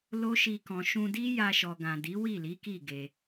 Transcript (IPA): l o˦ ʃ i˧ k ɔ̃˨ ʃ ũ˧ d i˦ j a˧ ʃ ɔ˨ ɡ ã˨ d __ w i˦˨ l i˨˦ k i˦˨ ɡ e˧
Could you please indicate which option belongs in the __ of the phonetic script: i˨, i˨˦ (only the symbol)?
i˨˦